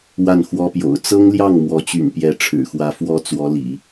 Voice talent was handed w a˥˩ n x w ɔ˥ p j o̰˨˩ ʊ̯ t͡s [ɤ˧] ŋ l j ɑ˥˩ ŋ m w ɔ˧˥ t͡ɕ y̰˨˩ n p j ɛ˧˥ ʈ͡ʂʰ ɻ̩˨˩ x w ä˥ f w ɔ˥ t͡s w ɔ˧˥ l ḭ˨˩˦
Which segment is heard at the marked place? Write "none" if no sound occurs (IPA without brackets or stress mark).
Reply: ɤ˥